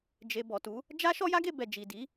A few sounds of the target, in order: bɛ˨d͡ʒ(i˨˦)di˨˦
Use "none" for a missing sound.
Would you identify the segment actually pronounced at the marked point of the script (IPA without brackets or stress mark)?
i˨